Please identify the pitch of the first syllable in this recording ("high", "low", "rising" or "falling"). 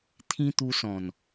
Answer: high